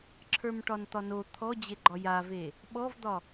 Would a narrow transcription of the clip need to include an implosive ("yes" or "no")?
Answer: yes